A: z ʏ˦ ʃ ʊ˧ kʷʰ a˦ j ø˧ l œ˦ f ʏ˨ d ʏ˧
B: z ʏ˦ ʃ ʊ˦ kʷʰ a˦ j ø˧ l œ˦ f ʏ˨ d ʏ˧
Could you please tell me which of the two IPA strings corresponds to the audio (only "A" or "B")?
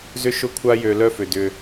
B